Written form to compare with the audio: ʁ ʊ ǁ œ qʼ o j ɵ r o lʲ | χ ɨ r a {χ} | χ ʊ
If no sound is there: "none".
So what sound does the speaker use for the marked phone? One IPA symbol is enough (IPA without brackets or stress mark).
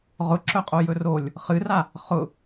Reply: none